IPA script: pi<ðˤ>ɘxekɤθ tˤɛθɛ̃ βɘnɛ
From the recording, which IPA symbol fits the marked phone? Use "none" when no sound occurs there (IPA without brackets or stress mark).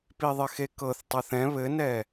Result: ðˤ